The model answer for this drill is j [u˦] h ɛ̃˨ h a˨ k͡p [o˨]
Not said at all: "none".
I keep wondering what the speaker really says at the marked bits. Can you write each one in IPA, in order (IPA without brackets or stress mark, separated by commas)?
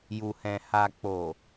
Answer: u˨, o˨